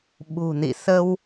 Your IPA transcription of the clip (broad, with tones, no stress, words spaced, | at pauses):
ɓṳ˨˩nḭ˧˨ sə˧w